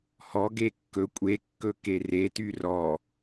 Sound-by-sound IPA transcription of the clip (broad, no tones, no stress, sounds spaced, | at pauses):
h ɔ ɡ e kː ɵ kʷʼ e kː ɵ k e r e t y r ɔ